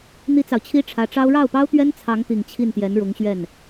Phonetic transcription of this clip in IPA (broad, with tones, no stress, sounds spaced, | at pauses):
n̪ i˥ t͡s ɑ˨ ʊ̯ t͡ɕʰ i˥ ʈ͡ʂʰ ä˧˥ ʈ͡ʂ ɑ˥ ʊ̯ ɻ ɑ˥˩ ʊ̯ p ɑ˥ ʊ̯ t̪ ɥ ɛ˥ n t͡sʰ ɑ˧˥ ŋ t̪ i˨˩ ŋ t͡ɕʰ i˥˩ n t̪ j ɛ˧˥ n ɻ ʊ˧˥ ŋ ɕ ɥ ɛ˥˩ n